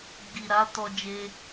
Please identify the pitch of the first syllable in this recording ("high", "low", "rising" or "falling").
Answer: low